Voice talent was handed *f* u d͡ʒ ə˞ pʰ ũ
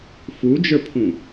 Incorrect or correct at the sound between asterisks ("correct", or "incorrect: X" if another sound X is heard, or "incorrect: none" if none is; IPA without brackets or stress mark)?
correct